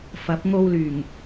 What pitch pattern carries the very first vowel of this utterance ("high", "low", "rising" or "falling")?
rising